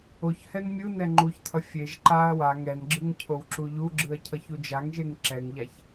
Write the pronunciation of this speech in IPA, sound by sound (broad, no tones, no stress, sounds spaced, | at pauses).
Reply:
o ç h ɛ n mʲ ɯ n ɛ ŋ͡ǃ u ç tʰ ʌ fʲ e ʒ ǃ a ɐ̯ w a ŋ ɛ n ɡ͡ǁ ɯ ŋ cʰ o w ǁ u ʎ u ɡ͡ǁ ɯ ɐ̯ cʰ ʌ ç u d͡ʒ a ŋ ʒ e ŋ ǁ ɛ ŋ ʎ a ç